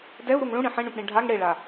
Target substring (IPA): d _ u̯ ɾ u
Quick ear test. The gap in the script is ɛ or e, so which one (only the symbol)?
ɛ